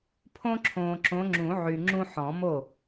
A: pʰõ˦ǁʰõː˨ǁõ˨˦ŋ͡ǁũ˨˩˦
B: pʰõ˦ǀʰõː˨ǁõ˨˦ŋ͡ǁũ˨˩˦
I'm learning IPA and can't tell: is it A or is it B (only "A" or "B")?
A